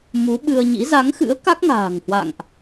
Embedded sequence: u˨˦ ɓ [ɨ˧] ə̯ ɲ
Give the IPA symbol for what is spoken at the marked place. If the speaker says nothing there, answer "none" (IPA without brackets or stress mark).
ɨ˧